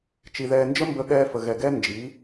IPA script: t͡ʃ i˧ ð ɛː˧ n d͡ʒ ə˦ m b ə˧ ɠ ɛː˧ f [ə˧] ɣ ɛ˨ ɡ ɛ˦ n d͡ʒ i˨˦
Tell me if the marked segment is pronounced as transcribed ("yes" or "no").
no